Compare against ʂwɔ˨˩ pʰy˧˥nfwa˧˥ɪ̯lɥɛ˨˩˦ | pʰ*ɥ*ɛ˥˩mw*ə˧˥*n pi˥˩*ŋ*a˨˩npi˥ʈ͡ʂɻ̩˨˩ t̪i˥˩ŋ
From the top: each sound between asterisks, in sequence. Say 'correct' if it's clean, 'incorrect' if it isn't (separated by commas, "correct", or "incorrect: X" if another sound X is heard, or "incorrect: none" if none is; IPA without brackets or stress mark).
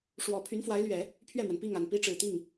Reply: correct, incorrect: ə˩, correct